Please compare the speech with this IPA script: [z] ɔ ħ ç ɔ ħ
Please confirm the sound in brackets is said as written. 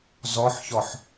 yes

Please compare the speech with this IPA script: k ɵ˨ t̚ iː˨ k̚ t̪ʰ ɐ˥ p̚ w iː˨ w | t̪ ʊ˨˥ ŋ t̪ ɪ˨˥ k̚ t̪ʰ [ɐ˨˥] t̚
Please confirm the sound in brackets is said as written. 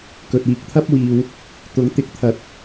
yes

